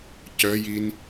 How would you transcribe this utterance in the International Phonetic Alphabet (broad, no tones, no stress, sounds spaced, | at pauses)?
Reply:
c œ j i n